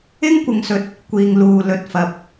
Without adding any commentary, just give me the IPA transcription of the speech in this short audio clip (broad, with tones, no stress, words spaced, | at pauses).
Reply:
ɪ˥ŋkʷɪ˨ŋsɵ˨˥t̚ | kʷiː˨ŋluː˨ lɵ˨t̚fɐ˨˥p̚